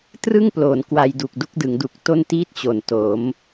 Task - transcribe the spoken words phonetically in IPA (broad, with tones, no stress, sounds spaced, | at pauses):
t r ɯ˥˩ ŋ p l oː˩˦ n k w a˧ j d u˨˩ k̚ d u˥˩ k̚ d ɯ˩˦ ŋ d u˨˩ k̚ t o˥˩ n t iː˥˩ t̚ t͡ɕ o˨˩ n t o˩˦ m